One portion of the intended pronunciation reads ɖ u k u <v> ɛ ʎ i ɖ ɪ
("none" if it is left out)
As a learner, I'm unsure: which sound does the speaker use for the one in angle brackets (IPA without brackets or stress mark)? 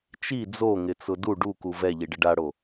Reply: v